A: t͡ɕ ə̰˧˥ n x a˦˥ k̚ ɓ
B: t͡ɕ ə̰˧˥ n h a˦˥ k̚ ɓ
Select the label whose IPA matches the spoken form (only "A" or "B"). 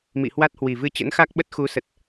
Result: A